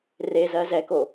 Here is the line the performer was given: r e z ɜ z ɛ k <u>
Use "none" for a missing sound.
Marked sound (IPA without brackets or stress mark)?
o